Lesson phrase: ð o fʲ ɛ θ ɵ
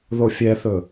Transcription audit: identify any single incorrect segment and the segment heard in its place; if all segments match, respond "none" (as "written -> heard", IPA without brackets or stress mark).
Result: none